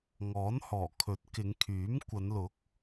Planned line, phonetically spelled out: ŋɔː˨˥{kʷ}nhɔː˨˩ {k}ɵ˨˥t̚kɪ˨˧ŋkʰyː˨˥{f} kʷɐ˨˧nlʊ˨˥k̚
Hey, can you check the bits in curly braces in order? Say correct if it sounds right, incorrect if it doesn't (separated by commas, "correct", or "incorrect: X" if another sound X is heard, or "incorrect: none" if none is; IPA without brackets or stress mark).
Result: incorrect: none, incorrect: kʰ, incorrect: m